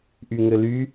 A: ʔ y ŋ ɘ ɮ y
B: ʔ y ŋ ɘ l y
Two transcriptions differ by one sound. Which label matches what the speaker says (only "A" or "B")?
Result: B